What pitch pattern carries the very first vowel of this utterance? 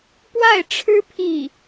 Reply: falling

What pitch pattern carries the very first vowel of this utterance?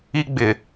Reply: high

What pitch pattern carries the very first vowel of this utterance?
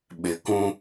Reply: low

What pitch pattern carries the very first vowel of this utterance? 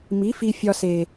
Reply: rising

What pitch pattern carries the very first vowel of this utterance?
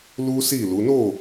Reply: high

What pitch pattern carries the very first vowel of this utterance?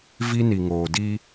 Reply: high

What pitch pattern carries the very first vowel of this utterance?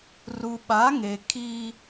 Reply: low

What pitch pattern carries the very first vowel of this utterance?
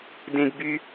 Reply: high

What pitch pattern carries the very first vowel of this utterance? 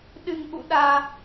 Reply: low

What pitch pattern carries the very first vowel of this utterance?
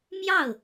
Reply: falling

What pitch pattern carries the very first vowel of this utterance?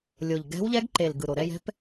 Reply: low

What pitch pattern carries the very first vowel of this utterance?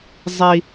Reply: high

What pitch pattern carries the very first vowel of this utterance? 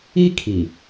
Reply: high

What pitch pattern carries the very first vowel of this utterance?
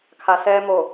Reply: low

